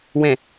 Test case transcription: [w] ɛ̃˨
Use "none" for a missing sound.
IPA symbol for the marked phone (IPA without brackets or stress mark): w